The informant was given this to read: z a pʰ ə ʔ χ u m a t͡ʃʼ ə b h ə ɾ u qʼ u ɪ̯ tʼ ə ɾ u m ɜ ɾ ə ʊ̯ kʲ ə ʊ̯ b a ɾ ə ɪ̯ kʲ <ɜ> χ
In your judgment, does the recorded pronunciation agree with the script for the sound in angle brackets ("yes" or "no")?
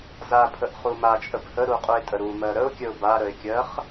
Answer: yes